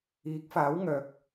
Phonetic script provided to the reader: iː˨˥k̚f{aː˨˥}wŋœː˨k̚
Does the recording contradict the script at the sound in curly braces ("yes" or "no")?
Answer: no